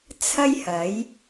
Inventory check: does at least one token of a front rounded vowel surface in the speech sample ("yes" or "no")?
no